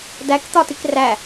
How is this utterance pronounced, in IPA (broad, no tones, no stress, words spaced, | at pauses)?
dæk t̪ɒtikræ